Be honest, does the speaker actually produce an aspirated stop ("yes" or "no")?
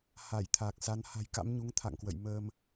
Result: yes